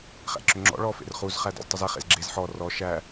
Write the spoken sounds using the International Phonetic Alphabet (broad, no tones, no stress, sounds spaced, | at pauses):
χ æ̰ ǁ ʏ ŋ͡ǁ ɔ̰ ɭ ɔ f ḛ r χ u z χ æ d ɔ̰ z tˤ i z ɛ χ ḛ z ɡ͡ǁ e z ħ ɔ r ɔ ʃ æ